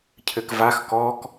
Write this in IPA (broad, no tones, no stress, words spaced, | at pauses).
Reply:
cʰɘkvax kɔk